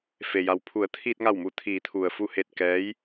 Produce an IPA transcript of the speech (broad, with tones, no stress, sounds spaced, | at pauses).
f e˩ j a˩ w pʰ u˩˧ ə̯ t̪ʰ iː˧ t̚ ŋ a˧˩ w m u˧˩ t̪ʰ iː˩˧ t̪ʰ u˩ ə̯ f u˧˩ h e˧˩ t̚ k ɛː˧˥ j